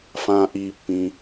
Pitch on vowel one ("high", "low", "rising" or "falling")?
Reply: low